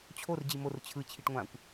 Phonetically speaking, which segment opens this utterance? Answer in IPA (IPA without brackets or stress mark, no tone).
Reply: t͡ɕʰ